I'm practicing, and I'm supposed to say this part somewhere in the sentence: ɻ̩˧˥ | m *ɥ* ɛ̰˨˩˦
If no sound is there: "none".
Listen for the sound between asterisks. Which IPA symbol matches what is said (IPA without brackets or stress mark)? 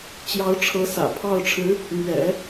ɥ